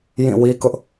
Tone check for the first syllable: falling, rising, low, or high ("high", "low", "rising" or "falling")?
falling